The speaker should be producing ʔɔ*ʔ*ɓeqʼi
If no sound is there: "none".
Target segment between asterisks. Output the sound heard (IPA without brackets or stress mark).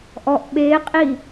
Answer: ʔ